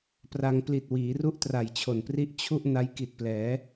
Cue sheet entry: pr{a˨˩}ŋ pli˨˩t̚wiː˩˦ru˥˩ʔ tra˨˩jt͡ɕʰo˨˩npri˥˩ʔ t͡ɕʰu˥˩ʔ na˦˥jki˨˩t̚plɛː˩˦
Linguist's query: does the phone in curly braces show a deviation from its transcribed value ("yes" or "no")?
yes